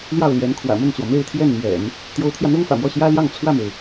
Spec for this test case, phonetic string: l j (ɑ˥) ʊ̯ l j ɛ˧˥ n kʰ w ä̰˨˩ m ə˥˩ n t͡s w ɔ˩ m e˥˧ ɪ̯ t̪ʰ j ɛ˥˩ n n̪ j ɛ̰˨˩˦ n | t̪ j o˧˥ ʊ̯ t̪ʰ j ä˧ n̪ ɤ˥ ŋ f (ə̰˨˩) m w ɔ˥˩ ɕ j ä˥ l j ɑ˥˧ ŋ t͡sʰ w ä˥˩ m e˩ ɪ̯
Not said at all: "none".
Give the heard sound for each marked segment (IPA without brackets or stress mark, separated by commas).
ɑ˥˩, ä̰˨˩